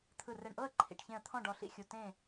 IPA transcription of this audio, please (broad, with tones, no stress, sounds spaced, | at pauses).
t̪ʰ ɯ˧˩ r ɛ˧˩ ɳ ʔ ɤ˥˨ ə̯ ǃʰ ḭ˧˩ ʈ ç ẽ˧˩ ə̯ t̪ʰ ɔ̃˥˨ ɖ ɔ˧˩ ɬ ḭ˥˨ xʲ u˧˩ t ẽ˥˨